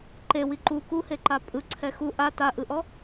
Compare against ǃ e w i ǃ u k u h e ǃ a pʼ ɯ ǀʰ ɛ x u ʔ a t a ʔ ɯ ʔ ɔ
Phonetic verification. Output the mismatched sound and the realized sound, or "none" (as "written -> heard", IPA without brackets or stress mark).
none